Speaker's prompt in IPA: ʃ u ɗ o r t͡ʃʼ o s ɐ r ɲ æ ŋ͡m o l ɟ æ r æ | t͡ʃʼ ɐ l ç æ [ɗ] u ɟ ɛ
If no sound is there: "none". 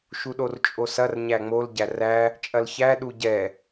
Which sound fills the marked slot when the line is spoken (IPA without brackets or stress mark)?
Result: ɗ